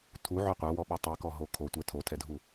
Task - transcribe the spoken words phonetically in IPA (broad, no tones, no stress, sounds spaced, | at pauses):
tʰ u ʕ œ qʷ œ w ɔ ɓ ɔ tˤ i k ɔ ɦ o kʰ o tʷ ɛ tʰ o tʰ ɛ dʱ u